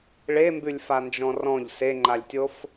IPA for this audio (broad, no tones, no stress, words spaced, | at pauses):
ɭembʉlʲfand͡ʒɔ̃ rɔ̃ʎ seŋ͡ǃalʲtʲof